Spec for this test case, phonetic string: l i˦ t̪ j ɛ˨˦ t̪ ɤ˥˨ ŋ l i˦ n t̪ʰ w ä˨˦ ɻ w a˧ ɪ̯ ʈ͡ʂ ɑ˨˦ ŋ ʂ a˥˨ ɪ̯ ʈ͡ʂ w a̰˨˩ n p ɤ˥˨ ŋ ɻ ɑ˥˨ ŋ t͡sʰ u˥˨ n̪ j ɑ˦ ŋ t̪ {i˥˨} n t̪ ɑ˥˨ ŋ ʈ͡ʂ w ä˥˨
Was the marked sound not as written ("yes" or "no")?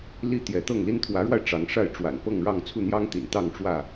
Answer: yes